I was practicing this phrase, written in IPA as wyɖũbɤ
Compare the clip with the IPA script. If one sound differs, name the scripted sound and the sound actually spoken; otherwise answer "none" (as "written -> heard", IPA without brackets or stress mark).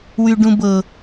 none